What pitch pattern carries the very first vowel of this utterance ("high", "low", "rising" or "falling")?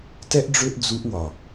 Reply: high